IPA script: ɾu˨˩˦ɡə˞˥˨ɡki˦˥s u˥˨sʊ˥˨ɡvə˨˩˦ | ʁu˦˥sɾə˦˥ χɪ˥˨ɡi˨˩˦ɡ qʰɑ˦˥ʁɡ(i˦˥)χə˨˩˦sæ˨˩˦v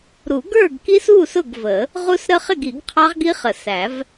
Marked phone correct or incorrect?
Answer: correct